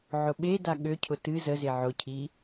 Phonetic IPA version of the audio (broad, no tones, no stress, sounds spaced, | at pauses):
ʕ ʊ ɓ e d a ɠ ø cʰ ʊ t ɨ z ə z e ʕ ʊ cʰ i